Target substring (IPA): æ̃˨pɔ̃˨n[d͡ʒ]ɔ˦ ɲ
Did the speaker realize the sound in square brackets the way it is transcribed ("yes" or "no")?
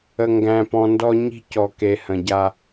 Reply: no